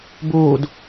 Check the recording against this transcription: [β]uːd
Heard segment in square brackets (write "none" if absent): b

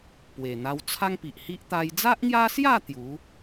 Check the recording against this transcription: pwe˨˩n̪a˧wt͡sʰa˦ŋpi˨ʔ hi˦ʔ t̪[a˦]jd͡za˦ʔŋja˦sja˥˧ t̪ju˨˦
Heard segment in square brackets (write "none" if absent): a˧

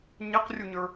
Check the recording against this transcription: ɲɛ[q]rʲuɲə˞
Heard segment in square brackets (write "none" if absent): q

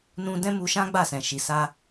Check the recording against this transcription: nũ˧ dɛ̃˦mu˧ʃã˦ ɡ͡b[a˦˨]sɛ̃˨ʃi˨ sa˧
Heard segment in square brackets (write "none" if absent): a˦˨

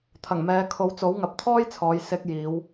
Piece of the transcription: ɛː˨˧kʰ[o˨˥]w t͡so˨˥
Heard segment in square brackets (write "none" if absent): o˨˥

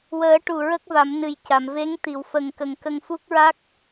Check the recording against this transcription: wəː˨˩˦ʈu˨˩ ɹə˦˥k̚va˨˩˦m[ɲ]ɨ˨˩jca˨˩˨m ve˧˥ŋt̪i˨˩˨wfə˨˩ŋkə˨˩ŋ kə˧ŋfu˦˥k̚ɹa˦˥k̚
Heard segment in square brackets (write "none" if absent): n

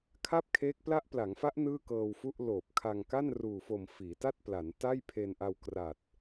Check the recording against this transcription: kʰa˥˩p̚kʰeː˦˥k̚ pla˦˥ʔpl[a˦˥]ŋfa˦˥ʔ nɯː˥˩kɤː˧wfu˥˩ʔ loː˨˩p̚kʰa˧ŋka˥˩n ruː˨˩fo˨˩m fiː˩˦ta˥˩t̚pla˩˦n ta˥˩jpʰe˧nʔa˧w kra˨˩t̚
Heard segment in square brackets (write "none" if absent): a˩˦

